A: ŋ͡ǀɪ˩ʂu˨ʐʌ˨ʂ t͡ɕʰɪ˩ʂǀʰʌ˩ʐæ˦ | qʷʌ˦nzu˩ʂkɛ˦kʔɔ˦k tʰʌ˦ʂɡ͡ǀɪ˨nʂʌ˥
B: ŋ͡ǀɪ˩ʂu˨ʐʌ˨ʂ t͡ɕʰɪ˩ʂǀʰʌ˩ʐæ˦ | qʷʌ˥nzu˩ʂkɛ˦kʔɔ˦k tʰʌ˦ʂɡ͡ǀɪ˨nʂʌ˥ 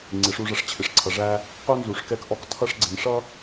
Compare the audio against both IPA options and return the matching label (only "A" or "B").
B